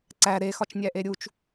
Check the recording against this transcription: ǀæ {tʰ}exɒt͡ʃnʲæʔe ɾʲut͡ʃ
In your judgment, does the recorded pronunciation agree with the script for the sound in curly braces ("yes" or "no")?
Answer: no